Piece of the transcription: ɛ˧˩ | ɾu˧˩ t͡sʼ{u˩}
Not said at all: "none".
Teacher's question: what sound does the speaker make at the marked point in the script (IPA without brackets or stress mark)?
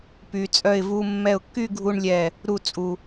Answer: u˩